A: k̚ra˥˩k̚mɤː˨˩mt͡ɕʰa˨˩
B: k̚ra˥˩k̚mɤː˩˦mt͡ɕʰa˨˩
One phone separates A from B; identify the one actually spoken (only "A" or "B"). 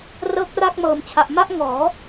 A